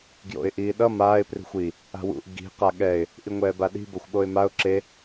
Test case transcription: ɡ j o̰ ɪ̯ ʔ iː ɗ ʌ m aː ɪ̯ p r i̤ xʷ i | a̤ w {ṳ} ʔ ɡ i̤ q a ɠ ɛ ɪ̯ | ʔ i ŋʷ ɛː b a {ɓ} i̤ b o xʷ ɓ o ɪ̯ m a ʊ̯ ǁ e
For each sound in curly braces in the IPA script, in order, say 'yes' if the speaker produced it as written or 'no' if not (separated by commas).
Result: no, no